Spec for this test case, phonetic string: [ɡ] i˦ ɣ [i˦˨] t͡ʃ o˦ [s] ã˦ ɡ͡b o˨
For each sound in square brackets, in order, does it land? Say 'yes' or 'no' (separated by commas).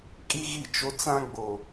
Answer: no, yes, no